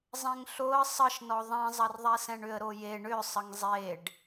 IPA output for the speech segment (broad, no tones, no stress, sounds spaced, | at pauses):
zˤ ɛ̃ ŋ ɬ o ə̯ sˤ ə ʃ n ɔ ðˤ ɛ̃ zˤ ɐ r ðˤ ɛ s ɛ̃ ɳ ʏ ə̯ ɾ o j e ɳ ʏ sˤ ə ŋ zˤ e ɖ